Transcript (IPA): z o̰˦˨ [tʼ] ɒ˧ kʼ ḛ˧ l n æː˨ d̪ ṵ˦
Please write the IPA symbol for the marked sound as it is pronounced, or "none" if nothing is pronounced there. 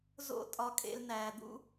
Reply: tʼ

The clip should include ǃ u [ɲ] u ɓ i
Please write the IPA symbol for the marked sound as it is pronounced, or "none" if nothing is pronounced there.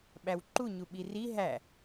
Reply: ɲ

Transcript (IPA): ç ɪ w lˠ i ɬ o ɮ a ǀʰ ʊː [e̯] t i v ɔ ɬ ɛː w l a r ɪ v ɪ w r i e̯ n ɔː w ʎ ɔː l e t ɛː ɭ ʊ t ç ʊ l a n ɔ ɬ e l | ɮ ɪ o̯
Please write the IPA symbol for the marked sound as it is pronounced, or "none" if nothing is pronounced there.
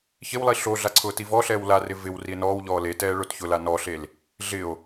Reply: none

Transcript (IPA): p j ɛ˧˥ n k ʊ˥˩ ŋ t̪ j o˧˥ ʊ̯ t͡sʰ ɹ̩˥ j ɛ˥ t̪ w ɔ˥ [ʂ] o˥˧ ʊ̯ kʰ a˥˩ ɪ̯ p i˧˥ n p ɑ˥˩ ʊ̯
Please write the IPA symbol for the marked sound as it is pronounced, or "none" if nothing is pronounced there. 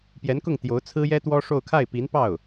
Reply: ʂ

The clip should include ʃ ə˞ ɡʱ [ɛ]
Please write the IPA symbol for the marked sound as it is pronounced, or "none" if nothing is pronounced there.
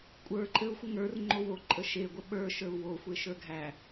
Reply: æ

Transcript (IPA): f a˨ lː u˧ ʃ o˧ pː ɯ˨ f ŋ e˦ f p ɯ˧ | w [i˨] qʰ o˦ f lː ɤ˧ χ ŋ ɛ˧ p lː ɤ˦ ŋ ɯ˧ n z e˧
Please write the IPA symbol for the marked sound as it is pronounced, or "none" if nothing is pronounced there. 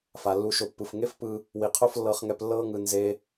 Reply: i˨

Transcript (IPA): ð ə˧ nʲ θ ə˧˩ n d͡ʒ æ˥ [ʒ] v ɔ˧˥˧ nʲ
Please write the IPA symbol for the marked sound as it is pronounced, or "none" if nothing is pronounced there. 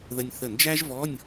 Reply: ʒ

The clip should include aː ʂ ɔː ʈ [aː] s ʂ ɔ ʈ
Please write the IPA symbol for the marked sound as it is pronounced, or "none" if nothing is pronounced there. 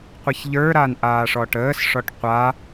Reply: əː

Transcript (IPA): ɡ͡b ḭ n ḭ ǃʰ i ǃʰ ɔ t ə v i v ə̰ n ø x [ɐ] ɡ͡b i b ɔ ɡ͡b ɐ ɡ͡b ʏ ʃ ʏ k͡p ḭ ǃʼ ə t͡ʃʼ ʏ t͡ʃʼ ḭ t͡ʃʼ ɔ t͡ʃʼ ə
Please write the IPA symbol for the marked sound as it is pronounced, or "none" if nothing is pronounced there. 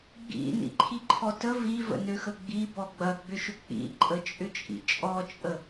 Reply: ə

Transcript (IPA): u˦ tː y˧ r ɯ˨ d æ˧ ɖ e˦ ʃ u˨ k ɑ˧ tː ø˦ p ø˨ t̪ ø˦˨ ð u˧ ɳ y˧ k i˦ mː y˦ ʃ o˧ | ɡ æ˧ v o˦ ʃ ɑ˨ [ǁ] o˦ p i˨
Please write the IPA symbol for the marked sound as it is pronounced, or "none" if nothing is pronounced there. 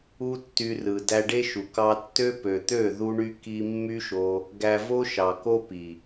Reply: k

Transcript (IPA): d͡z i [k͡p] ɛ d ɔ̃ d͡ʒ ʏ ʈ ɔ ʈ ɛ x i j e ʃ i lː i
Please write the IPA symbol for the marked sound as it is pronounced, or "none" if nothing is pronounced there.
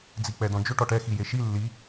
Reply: k͡p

